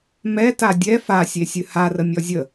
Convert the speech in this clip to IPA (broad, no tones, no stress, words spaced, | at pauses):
mɛta dʲɛ fasʲesʲɨ harəmʲɔ zʲə